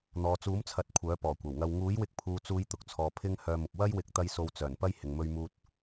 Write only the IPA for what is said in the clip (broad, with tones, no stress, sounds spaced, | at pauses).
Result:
n̪ ɔː˨ t͡s uː˨˥ m t͡sʰ ɐ˨˥ t̚ kʷʰ œː˨˥ p ɔː˨˩ kʷ ɐ˨˩ w ŋ ɐ˧ w ŋ uː˨˥ j w ɪ˧ k̚ pʰ uː˨ t͡s uː˨˧ j t̪ ʊ˨ k̚ t͡sʰ ɔː˨ pʰ ɪ˧ ŋ h œː˧ m ʊ˨ k̚ w ɐ˥ j w ɪ˨˥ k̚ t̪ ɐ˧ j s o˧ w t͡s œː˨˩ n p ɐ˥ j h ɪ˨ ŋ m ɵ˥ ɥ m uː˥ t̚